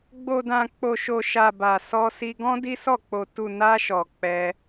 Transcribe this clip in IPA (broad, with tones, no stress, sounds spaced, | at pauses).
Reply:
ɡ͡b o˧ d ã˧ k͡p o˧ ʃ o˧ ʃ a˧ b a˧ s ɔ˦ s i˦ ɡ ɔ̃˦ d i˦ s ɔ˦˨ k͡p o˧ t u˧ n a˦ ʃ ɔ˧ k͡p ɛ˦